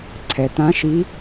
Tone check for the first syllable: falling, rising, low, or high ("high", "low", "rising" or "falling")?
low